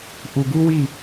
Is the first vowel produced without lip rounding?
no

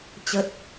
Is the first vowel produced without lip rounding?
yes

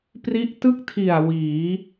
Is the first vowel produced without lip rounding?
yes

